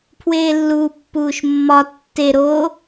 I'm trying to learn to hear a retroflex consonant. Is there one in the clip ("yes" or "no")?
no